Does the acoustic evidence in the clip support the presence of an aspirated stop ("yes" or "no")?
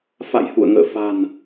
no